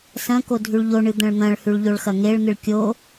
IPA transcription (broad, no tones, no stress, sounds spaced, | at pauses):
s ɐ̃ k o dʱ ʉ ɭ ʎ o ɳ ɨ d̪ ɐ̃ ɭ n̪ ɐ̃ ɭ h ʉ ɭ ʎ o ɭ x ɐ ŋ e ɭ n̪ ɨ ɭ kʲ o